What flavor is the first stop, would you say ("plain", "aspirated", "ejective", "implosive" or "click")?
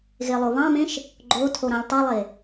click